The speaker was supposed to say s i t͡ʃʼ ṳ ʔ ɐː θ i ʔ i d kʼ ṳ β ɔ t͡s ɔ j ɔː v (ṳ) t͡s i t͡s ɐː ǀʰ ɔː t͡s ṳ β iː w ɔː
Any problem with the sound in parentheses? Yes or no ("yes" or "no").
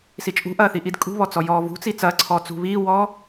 no